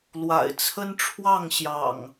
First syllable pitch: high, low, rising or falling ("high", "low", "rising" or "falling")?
low